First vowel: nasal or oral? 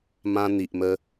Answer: nasal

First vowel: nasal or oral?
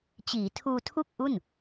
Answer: oral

